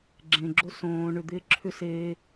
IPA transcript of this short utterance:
ɡ͡ǁ ẽ ɡ͡ǁ o s õː ɳ ʏ d̪ ɪː ǁʰ ʏ s eː

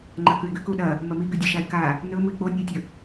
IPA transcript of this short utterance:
ŋ͡ǃ ɐ k ʉ ɪ̯ ɡ ʉ k u ɗ ɐ | m ɐ m i ɡ ʉ dʲ e ʃ a ɪ̯ k a | n ɵ m ɨ ɪ̯ k͡p o nʲ ɨ ɪ̯ tʲ ɵ

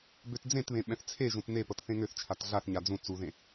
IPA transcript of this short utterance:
b ø t d͡z ẽ t β ẽ ɓ ɛ̃ θ t͡sʰ e ʒ ũ t n e p ɤ t θ ẽ ŋ ø θ t͡ʃʰ a t ɮ a θ ɲ a d͡z ũ t͡s u ð ẽ

